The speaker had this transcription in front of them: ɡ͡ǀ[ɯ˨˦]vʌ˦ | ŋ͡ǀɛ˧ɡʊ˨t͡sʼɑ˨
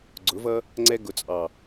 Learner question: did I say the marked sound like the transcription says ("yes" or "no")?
no